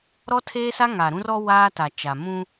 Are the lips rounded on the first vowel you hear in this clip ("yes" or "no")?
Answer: yes